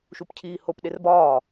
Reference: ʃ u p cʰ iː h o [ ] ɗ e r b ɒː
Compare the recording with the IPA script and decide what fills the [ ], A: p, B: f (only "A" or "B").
A